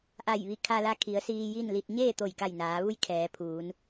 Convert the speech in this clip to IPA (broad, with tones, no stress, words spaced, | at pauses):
ʔa˧˩jʋi˧˩ kʰa˧la˧kʰi˩˧ə̯ siː˧ji˥˨nli˧t̚ ɲeː˥˨t̪o˧˩jka˧˩j naː˩˧ʋu˧˥j kʰɛː˩˧pʰuː˩˧n